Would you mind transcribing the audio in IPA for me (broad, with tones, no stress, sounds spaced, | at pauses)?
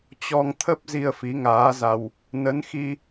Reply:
t͡ɕ ɔ˧ ŋ t̪ʰ ə˦˥ p̚ z i˧ ə̯ f i˨˦ ŋ aː˨˦ z a˧ w | n ə˨˦ n x i˧